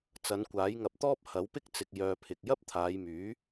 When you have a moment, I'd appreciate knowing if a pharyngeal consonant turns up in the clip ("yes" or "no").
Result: no